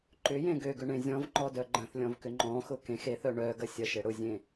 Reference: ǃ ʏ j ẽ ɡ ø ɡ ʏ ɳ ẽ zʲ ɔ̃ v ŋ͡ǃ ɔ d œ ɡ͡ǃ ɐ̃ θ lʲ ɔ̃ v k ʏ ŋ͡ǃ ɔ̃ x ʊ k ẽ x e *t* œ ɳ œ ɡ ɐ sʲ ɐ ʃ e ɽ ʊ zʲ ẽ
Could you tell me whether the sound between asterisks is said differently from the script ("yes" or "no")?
yes